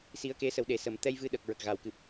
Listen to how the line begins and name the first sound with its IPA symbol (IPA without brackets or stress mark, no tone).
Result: s